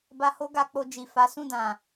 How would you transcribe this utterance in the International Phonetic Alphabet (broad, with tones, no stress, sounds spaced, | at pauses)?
b a˧ h o˦ ɡ a˧ k͡p o˧ d͡ʒ i˨ f a˨˦ s ũ˦˨ d ã˨